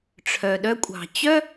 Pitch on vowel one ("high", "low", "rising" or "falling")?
low